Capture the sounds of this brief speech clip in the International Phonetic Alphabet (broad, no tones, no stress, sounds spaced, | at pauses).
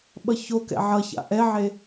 ɓ ʌ ç o k ɛ̰ ʕ ʌ ç a̰ ʔ ɛ ʕ e